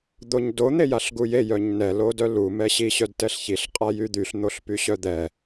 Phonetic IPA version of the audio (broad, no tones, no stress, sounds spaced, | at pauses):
d̪ o ɲ d o n̪ e j a ɬ ɡ u j e j œ ɲ n ɛ l o d œ l u m ɛ ɕ i ɕ œ d t ɛ ɬ ç i ɬ qʼ a j y d̪ y ɬ n̪ o ɬ p y ɕ œ d̪ ɛ